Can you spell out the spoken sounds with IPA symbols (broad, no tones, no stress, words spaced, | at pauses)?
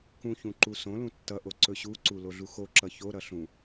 kũçũ ǃusõlũ tːʌʔo ǀɵɕuǀu loɮuxoǁʌ çoɾʌ ɬũ